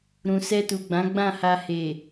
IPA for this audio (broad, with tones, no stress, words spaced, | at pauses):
ɾũ˨sɛ˧tu˨ɡ͡bã˨˦ ɡ͡bã˦˨ha˧ he˨